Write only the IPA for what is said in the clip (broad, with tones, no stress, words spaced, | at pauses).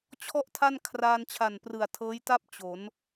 t͡ɕʰɔ˥˩ʔtʰa˥˩n kʰraː˧nt͡ɕʰa˨˩nprɯ˨˩a̯ tʰɤː˦˥jta˥˩p̚ t͡ɕo˩˦n